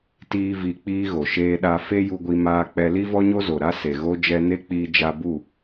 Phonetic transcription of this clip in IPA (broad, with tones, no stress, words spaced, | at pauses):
tiː˦vi˧k͡piː˦ɣo˨ ʃeː˧ɗa˧fe˦ ju˧ɡʷi˧maː˧k͡pɛ˧ li˦vɔ˦ɲo˦zo˨ ɾa˦ se˨ɣo˦ d͡ʒɛ˧ne˦k͡piː˧ d͡ʒa˧bu˦˨